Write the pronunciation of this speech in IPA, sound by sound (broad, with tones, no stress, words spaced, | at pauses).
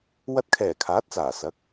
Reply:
wɐ˧t̚kʰɛː˨˩ kʰaː˨˥t̚t͡saː˨˩ sɐ˨˥k̚